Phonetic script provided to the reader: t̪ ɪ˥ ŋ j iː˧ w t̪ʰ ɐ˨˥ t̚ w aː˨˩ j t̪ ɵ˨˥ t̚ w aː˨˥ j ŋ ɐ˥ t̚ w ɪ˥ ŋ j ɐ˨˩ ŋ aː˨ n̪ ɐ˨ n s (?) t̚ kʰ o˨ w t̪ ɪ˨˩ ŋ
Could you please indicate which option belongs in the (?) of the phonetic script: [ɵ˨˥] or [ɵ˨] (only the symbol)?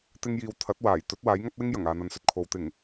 ɵ˨